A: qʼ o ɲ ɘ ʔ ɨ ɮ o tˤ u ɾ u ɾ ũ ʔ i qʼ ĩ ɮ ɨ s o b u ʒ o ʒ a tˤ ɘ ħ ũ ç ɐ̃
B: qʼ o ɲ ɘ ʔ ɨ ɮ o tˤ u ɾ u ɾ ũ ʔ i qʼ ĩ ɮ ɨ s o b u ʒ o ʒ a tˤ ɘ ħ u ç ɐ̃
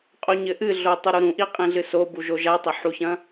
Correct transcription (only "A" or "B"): B